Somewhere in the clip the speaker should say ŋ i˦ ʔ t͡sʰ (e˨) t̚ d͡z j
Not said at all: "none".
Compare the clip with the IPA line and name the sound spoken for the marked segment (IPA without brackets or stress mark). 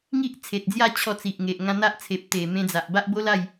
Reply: e˨